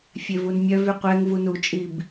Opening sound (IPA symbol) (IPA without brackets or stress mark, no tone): fʲ